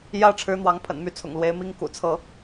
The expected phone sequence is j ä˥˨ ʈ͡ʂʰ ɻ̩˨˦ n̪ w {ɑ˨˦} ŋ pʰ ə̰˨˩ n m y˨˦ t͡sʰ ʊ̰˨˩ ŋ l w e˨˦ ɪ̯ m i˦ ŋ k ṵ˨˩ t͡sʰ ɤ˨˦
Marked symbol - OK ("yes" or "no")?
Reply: yes